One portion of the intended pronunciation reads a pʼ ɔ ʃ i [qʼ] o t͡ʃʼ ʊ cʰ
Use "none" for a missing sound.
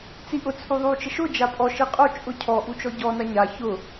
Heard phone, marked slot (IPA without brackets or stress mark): qʼ